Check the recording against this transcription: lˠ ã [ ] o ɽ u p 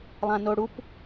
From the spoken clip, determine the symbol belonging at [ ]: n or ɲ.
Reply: n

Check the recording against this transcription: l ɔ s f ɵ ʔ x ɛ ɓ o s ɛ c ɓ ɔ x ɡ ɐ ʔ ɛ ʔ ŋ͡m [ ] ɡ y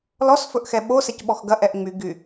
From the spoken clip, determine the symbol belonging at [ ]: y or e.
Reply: y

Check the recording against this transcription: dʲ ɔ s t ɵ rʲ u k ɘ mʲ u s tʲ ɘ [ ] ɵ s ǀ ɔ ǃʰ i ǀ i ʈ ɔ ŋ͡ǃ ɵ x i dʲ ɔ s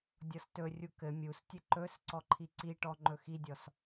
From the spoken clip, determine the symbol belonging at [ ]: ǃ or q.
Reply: ǃ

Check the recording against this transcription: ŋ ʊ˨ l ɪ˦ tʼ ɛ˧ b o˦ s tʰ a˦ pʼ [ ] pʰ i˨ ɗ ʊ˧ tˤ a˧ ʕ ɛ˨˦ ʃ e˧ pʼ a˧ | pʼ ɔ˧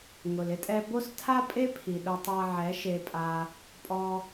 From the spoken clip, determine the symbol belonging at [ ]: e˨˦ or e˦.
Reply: e˦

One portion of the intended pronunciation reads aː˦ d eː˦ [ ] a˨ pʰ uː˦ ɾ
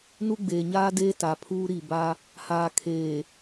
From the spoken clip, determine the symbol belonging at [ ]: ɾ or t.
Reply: t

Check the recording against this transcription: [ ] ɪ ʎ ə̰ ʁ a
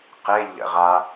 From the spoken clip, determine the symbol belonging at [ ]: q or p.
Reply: q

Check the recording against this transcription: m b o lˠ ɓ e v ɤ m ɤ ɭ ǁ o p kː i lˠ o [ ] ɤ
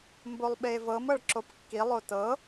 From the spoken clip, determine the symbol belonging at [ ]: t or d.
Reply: t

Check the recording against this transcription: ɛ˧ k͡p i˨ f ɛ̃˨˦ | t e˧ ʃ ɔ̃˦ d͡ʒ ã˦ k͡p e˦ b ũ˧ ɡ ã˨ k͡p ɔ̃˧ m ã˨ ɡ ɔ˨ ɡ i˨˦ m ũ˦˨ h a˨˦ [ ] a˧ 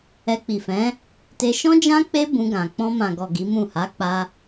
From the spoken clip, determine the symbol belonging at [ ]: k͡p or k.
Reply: k͡p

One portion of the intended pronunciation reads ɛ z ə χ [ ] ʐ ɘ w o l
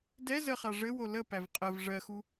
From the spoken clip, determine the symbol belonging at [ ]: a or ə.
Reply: a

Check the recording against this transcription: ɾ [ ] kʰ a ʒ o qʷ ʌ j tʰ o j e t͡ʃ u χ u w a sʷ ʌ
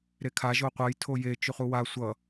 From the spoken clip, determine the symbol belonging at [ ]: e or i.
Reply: e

